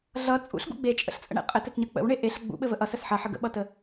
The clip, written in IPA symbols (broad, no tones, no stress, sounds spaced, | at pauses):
ɮ ʌ t͡sʼ ṵ ɬ ɡ ṵ ɡ͡b e t͡ʃʼ ə̰ ɬ t͡sʼ ə̰ ɳ ḛ qʼ ɘ t ɘ t ɲ ʌ k͡p ə̰ w ɳ e ʔ e ɬ ɘ ɡ͡b ṵ ɓ ɘ v ə ʔ ʌ s ə s ħ ʌ ħ ə ɡ ə̰ ɓ ʌ t ə